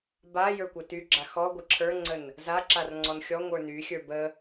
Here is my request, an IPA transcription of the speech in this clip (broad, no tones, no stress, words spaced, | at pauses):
ba jə˞kʷətyɡ͡ǁa xɔɡʷə ǁʰə˞ŋ͡ǀən | za ǁarŋ͡ǀɔnxʲɔ ŋʷə˞ny xʲə˞bə